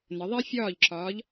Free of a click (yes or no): no